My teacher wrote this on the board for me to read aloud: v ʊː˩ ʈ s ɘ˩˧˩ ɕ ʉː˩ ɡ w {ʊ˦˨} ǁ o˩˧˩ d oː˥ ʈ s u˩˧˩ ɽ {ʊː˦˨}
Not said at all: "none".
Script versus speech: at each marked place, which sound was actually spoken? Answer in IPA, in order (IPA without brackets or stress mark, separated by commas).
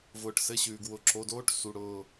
ʊ˩˧˩, ʊː˦˨